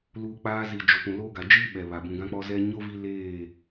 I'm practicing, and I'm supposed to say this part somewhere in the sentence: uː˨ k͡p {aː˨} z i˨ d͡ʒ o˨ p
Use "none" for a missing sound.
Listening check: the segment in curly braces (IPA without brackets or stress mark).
aː˦